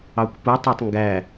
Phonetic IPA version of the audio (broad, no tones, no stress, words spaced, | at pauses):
ɑkʷputˤætˤ ŋɡæ